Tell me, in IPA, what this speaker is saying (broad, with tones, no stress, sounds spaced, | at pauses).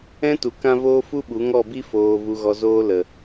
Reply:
ɛ̃˦ t u˨ k ã˧ v oː˧ f u˦ ɓ u˨˦ ŋ ɔ˦˨ b i˦ f oː˨ v u˨ ɣ ɔ˨ z oː˦ l ə˨